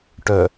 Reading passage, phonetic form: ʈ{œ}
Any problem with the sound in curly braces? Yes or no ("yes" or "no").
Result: no